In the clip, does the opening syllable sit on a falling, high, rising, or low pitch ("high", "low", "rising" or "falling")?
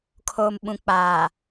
low